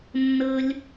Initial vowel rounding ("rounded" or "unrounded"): unrounded